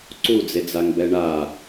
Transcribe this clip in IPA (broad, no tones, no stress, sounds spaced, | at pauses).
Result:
ǀ u d͡z e d͡z a ŋ b ɛ ɳ a